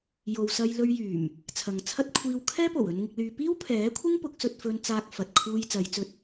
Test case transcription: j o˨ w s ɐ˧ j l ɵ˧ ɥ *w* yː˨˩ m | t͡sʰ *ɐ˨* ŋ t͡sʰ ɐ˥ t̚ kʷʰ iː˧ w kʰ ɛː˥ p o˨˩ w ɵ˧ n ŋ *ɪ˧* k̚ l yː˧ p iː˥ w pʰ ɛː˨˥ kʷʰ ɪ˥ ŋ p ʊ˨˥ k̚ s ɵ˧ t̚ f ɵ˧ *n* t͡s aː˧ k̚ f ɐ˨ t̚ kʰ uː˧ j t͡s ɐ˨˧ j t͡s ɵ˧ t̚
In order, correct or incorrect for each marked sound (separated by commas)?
incorrect, correct, correct, correct